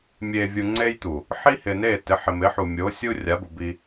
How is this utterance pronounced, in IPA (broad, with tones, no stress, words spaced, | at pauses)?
mʲe˨vʲu˨ ŋ͡ǀe˦jt̪u˨ | ħi˦hɪ˨ne˦˨ tɪ˨˦ħɪ˨mɪ˨˦ħu˨ mʲo˨˦sʲu˦ rʲa˨˦bu˨ bi˦